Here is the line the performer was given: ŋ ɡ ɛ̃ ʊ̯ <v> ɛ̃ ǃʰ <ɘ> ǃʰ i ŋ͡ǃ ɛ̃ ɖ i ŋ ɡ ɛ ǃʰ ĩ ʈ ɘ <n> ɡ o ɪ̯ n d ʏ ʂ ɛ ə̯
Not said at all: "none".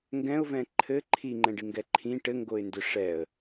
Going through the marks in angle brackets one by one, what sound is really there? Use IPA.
v, ɘ, ŋ

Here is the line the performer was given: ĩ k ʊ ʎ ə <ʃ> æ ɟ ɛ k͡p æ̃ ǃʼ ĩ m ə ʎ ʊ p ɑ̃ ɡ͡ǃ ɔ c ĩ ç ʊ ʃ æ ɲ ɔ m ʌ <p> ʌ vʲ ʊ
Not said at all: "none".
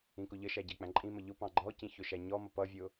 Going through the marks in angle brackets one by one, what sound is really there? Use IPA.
ʃ, p

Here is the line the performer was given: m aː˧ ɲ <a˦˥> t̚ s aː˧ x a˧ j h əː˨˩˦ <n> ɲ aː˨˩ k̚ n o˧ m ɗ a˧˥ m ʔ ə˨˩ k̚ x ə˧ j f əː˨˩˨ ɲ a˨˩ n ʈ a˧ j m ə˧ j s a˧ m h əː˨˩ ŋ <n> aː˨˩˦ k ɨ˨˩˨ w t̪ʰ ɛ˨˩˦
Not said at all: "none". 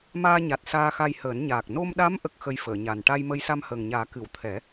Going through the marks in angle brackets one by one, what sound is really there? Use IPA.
a˨˩, n, ɲ

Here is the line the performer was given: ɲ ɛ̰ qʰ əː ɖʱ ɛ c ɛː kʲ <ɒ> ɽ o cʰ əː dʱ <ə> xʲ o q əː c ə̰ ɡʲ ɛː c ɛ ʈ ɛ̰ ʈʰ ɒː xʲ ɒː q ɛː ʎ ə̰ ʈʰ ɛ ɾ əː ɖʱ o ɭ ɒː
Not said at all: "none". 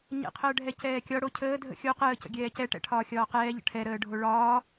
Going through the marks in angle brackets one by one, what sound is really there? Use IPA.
ɒ, ə̰

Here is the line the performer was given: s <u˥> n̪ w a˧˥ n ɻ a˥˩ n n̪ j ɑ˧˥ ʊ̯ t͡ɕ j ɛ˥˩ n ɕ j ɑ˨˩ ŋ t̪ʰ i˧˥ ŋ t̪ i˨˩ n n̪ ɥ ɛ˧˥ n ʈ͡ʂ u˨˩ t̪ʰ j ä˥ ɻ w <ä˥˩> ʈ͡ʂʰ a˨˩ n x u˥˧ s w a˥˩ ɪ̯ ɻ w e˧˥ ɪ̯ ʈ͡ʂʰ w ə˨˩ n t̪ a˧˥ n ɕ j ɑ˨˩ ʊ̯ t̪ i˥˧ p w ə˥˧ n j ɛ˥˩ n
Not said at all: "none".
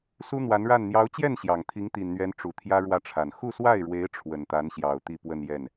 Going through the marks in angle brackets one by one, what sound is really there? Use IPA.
u˥, ä˥˩

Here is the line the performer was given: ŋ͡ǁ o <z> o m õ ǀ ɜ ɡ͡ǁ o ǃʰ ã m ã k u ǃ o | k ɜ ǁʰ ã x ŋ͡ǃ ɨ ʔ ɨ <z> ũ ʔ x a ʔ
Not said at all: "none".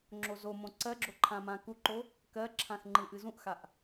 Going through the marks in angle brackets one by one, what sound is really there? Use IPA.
z, z

